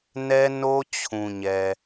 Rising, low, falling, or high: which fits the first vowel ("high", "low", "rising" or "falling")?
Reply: high